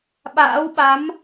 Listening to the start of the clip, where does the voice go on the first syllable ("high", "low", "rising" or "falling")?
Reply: rising